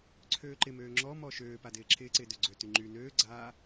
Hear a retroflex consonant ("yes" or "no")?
no